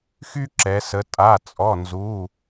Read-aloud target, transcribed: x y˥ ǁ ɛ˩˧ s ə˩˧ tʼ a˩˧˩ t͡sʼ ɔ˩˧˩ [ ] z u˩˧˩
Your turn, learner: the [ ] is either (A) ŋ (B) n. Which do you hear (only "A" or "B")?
B